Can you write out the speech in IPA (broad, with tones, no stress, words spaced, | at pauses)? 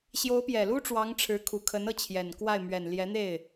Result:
ɕjo˧˥ʊ̯pjɛ˨˩lu˥ʈ͡ʂwɑ˧˥ŋ ʈ͡ʂʰɻ̩˧˥kʰu˨˩kʰə˧˥n ɤ˥˩t͡ɕʰjɛ˨˩nkwa˥˩ɪ̯ mɥɛ˨˩nljɛ˧˥n̪e˥˩ɪ̯